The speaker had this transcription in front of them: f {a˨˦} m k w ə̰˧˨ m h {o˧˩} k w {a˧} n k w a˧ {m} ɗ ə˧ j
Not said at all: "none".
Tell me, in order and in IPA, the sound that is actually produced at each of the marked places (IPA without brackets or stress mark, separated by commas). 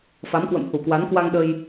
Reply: a˨˦, u˧˩, a˨˦, ŋ